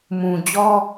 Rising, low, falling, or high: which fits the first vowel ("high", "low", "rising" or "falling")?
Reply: low